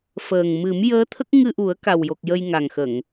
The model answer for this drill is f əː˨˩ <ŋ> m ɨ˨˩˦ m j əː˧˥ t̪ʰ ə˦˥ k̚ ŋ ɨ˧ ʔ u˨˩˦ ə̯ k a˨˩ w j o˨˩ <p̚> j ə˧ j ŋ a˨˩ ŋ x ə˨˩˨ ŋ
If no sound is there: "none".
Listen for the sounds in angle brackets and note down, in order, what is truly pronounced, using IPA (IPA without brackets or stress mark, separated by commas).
ŋ, k̚